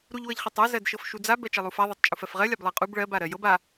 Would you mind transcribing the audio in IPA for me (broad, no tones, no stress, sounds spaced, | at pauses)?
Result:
ɾ u ʎ w ɤ ʎ χ ɛ tˤ ɤ z ɜ d ʃ ɤ f ʃ u d͡z a b ɜ t͡ʃ ɜ lˠ u f a ðˤ ɛ tˤ t͡ʃʼ u f ɜ f ʁ ɜ lʲ a b lˠ ɜ qʼ u b ɭ ɜ b a ɾ ɜ j ɤ b a